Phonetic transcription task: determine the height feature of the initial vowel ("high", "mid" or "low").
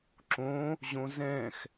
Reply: mid